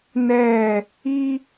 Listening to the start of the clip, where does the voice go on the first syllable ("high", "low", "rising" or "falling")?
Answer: falling